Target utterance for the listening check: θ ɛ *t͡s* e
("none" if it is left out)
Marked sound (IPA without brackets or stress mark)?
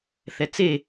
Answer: t͡s